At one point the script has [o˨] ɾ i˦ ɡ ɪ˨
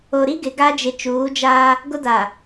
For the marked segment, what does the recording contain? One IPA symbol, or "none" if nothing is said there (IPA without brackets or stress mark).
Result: o˨